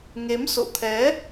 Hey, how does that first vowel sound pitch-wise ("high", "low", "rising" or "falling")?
rising